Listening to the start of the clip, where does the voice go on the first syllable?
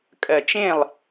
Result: low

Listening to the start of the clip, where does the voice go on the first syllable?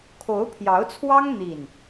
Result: rising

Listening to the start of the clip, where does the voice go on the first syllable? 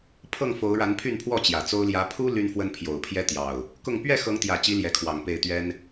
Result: falling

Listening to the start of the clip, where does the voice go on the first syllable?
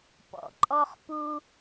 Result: low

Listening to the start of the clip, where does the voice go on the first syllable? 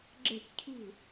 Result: falling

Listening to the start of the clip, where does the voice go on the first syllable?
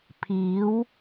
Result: rising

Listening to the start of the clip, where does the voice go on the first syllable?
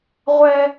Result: high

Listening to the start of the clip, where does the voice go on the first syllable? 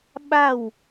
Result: falling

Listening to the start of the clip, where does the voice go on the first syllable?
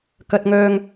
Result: low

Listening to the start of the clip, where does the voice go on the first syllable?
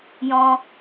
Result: low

